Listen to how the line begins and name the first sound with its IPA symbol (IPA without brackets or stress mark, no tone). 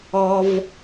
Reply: ɔ